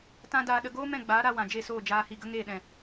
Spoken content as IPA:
t ã˦ d aː˧ ɗ ə˧ ɡ oː˦ m ɛ̃˦˨ ɡ͡b aː˨˦ ɾ a˧ w ã˨ d͡ʒ e˦˨ s oː˦˨ d͡ʒ aː˧ h i˧ ɡ ə˦ ŋ eː˦˨ ɗ ɛ̃˨

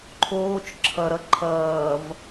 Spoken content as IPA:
ǃʰ oː t͡ʃ ǁʰ ʌ ɾ ʌ ǃʰ ʌː v

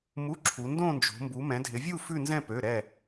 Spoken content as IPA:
m u˧˥˧ ǁʰ u˨˦ n d õ˥˧ n d͡ʒ o̤˨˦ m b u˨˦ m ɛ̃˨˦ dʱ ɪ˨˦ vʲ u˥˧ f ʉ˥˧ n z ɛ̃˥˧ p ø˧˥˧ ɾ ɛ˥˧

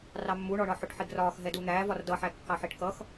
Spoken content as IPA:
r ɑ mː u ɳ ɔ ɳ ɒ ħ ʊ ʈ ħ i ɡ r ɒː x ɦ ɛ d u n̪ æː v ɒ r d ʌ ħ æ kː ɑ ħ i ʈ k ʌ x

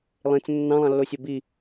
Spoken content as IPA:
lˠ ĩ t͡s ə̃ nː ɑ̃ lˠ ɑ̃ lː o sʲ ɤ b i

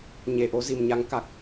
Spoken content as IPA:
ɲ e˨˩ ʔ o˨˦ z i˨˩ m ɲ a˨˦ ŋ k a˨˩ k̚

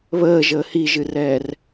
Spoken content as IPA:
β əː ʒ əː h i ʒ ɨ r ɛː r

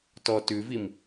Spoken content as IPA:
t ɔ t ʉ v i m

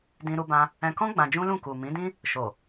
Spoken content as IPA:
d ĩ˧ ɾ u˧ b ã˧ | ɛ̃˧ k ɔ̃˦ ɡ͡b ã˧ d͡ʒ ũ˦ l ũ˦˨ k u˨ m ĩ˨˦ d ĩ˦ | ʃ o˨

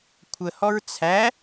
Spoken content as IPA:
kʷʰ ə h ɔ ɹ t͡sʰ æ

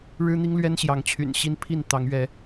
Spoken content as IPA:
ɻ ɻ̩˦ n̪ i˦ ŋ l ɥ ɛ˦ n ɕ j ɑ˨˦ ŋ t͡ɕʰ y̰˨˩ n ɕ i˦ n pʰ i˥˨ n t̪ ɑ˨˦ ŋ ɥ ɛ˨˦

